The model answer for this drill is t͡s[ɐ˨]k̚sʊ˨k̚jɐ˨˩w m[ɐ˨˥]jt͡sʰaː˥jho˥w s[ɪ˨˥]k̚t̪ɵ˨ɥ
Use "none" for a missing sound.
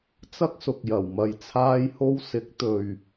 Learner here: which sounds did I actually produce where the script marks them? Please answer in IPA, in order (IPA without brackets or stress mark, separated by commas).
ɐ˥, ɐ˧, ɪ˨˥